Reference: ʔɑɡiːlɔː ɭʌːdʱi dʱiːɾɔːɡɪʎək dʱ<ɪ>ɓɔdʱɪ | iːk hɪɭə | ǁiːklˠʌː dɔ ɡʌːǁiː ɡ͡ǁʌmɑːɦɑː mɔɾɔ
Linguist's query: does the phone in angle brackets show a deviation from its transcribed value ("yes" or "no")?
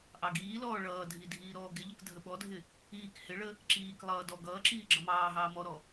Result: yes